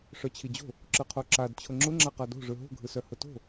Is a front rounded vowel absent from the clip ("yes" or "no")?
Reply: no